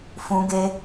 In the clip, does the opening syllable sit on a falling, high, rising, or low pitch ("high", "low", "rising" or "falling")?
high